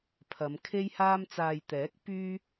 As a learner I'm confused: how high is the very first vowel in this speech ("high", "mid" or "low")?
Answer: low